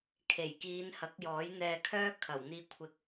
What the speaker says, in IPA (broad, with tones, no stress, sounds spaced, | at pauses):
kʰ e˨˩ j k iː˨˧ n h ɐ˨˥ k̚ j ɔː˨˥ j n̪ ɛː˧ kʰ œː˥ kʰ ɐ˨˩ w n̪ iː˧ kʷʰ ɪ˧ k̚